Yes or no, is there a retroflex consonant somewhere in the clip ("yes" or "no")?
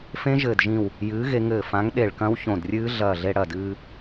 yes